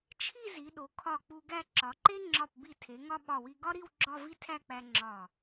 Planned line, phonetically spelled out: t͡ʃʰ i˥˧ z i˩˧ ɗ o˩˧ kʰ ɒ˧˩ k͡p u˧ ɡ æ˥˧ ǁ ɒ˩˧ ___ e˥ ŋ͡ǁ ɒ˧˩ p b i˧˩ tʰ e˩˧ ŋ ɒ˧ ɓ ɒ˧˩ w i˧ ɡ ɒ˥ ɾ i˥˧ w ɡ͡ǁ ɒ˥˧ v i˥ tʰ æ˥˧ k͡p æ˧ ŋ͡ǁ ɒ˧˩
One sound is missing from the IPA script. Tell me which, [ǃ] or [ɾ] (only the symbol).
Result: ǃ